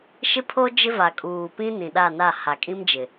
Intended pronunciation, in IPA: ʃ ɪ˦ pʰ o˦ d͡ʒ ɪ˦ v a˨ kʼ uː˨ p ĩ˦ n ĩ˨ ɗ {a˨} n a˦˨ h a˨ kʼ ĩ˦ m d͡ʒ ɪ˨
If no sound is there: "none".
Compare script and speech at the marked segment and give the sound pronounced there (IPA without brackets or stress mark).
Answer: a˦˨